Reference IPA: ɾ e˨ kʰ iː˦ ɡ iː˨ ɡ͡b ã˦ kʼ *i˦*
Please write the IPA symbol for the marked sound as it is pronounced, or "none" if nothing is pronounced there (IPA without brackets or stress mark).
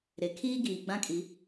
i˨˦